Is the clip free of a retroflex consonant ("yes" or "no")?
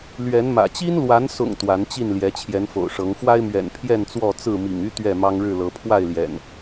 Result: no